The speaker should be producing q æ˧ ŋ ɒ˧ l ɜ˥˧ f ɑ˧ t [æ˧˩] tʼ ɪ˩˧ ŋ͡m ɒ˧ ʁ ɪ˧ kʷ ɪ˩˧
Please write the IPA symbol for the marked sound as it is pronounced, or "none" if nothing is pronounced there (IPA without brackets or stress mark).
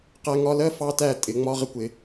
æ˧˩